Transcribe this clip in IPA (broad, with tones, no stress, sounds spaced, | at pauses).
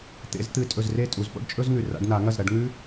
t̪ ḛ˨˩˦ z t̪ ɨ˨˩˦ tʼ ɵ˨ z r e˥˩ tʼ u˨˩˦ z p o̰˥ ɖ t͡ʃʼ ɵ˥ z ŋ ʉ˨ r a̰˨˦ ɖ n a˨˩˦ ŋ ɐ˥˩ z ɾ ɐ˨˩˦ ɖ ŋ ʉ˥